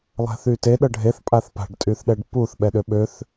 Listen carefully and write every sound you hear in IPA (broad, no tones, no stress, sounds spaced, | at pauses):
lˠ ɛ̤ θ y t e ɗ ɤ ɖʱ e θ pʼ a θ p a̤ ɖ tʼ y θ ɗ ɛ ɖ p u θ ɓ ɛ ɗ ø ɓ ø θ